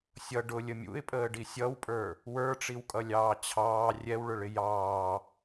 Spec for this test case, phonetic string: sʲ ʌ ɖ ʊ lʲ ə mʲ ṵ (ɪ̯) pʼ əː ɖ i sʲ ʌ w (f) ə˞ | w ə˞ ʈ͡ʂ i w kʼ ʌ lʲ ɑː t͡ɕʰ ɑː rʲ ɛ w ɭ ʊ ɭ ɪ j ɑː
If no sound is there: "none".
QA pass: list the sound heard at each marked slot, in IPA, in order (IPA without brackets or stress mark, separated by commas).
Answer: ɪ̯, pʼ